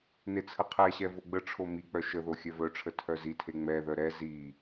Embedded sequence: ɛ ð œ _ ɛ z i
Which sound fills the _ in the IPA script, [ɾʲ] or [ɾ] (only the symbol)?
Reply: ɾ